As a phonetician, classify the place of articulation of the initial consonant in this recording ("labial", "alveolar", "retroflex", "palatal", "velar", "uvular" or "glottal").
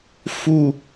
labial